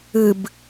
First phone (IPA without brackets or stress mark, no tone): ɨ